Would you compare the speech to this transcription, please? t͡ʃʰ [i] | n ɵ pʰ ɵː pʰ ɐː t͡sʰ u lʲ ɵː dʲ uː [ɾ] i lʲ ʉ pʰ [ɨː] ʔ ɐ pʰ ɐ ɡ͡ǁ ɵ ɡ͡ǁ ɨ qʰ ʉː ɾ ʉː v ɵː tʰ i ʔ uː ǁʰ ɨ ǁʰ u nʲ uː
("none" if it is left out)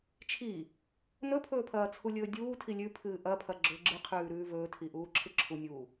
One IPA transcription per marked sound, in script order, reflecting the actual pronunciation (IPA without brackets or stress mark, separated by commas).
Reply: i, tʰ, ɨː